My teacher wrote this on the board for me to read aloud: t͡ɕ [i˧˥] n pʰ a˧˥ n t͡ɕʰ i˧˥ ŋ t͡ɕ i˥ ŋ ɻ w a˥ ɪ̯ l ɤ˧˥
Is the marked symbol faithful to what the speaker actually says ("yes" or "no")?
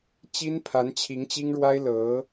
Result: no